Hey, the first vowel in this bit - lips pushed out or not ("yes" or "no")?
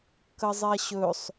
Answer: no